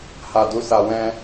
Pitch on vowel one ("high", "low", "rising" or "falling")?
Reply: low